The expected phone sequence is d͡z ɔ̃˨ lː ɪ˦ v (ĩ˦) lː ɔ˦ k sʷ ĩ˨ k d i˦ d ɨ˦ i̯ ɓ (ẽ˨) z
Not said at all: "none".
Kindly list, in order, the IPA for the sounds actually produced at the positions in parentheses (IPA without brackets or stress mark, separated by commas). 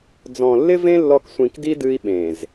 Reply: ẽ˦, ẽ˨